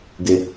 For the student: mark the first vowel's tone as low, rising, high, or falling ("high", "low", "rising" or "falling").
high